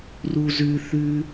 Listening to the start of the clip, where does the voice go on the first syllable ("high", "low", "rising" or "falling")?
high